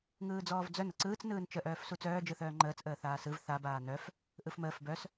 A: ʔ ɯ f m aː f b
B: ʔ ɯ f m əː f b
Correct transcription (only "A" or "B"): B